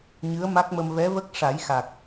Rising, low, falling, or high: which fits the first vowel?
rising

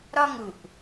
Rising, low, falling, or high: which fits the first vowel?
high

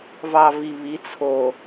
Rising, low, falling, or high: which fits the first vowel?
low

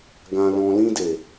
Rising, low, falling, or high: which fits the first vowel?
low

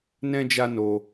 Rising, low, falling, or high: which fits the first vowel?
high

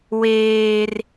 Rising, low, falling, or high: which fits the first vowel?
high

